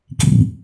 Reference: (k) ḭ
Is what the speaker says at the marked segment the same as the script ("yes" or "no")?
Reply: yes